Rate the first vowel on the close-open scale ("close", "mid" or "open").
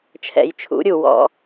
mid